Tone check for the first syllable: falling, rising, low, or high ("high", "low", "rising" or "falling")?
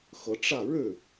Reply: rising